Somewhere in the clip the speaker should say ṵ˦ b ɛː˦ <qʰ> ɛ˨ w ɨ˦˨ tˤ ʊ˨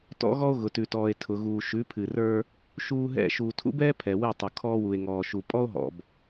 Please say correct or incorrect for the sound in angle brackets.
incorrect: pʰ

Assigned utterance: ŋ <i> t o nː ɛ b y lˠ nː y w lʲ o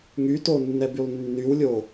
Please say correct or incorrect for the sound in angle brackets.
incorrect: y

